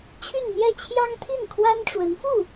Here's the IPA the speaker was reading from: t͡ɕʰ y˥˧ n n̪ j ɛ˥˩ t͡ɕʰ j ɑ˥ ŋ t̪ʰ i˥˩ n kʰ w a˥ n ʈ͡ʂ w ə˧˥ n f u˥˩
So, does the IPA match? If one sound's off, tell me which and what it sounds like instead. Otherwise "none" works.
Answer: none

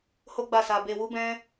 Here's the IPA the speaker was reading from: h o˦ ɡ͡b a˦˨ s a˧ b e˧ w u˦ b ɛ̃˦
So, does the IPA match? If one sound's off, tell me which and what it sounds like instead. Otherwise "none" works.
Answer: none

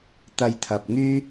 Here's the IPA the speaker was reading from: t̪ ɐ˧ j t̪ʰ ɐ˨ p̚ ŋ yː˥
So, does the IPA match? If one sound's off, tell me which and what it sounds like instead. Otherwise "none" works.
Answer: none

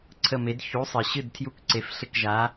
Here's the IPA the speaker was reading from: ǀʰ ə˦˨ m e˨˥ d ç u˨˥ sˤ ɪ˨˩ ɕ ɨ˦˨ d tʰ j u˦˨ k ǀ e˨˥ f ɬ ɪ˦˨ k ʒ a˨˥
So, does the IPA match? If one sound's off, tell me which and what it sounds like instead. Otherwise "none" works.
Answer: none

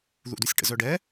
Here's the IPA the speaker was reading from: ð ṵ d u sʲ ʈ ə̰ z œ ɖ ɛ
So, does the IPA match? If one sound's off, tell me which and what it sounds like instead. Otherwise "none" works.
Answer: none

